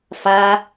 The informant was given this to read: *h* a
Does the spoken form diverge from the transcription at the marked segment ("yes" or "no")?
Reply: yes